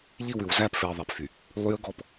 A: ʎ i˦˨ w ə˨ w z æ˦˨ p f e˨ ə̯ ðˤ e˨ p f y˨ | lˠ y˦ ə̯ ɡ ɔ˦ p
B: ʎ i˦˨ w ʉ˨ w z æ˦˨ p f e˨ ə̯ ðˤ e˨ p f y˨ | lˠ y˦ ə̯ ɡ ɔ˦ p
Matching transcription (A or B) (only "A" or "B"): B